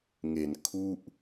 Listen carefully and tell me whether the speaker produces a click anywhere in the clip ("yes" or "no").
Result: no